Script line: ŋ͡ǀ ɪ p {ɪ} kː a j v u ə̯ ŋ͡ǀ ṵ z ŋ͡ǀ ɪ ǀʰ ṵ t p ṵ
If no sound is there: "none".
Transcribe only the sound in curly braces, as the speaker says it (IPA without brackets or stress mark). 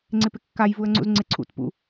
ɪ